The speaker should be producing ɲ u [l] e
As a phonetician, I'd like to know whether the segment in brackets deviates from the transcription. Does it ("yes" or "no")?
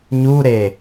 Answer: yes